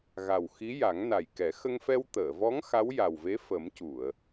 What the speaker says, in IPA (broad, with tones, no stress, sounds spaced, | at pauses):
ɣ a˨˩ w x i˧˥ j a˨˩˦ ŋ n a˨˩ j k ɛ˨˩˦ x ə˧ ŋ f ɛ˧ w t̪ əː˨˩˨ v ɔ˧˥ ŋ x a˧˥ w j a˨˩ w v e˧˥ f ə˨˩˦ m c u˨˩˨ ə̯